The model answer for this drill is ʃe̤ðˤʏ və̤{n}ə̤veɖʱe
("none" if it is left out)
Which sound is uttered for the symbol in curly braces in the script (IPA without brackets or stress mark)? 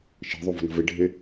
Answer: n